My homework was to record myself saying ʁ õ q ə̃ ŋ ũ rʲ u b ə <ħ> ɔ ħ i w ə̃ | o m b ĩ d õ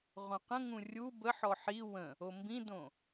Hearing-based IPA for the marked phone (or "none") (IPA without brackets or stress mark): ħ